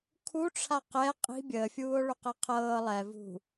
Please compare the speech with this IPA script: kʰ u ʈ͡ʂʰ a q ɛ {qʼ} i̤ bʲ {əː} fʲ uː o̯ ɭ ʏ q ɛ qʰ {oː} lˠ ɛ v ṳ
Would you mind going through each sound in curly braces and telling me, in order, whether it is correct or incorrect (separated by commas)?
correct, correct, incorrect